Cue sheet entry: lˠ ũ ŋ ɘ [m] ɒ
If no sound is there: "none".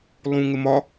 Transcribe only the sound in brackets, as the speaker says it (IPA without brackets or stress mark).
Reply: m